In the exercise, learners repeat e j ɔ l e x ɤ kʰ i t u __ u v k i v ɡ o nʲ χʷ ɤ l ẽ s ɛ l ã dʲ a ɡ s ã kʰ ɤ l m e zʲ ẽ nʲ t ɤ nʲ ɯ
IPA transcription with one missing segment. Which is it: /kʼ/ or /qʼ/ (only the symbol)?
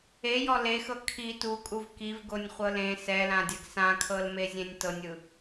kʼ